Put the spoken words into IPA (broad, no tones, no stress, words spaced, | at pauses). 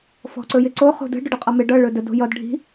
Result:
fɔ̤ǀɵjɪǀo χo̤də̤ ɖʊɖəqʼʌmɪ ɖʌ ɭɵdə do̤jʌd ɖʱi̤